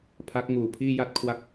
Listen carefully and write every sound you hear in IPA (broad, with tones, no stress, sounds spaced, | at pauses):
pʰ a˦˥ k̚ ŋ uː˨˩ pʰ iː˥˩ j a˥˩ t̚ kʰ w a˦˥ k̚